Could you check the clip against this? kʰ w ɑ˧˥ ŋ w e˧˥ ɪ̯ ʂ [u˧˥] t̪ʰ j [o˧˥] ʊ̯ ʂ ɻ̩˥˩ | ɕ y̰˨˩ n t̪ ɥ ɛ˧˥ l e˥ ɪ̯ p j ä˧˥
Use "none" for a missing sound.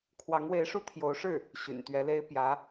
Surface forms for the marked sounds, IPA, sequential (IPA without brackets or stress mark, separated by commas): u˥, o˧˥